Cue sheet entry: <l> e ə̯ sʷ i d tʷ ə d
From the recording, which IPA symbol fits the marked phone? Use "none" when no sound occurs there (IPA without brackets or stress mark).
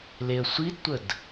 l